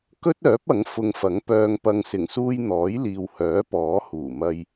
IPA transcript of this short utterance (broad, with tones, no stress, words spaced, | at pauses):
kɵ˥t̚œː˨˥p̚ ɐ˨˥ŋfʊ˧ŋfɐ˨˥ŋ pœː˨ŋpɐ˨ŋsɪ˨˩ŋsuː˧j n̪ɔː˨˥jliː˨whœː˨˥ pɔː˨˥huː˨˩ mɐ˧j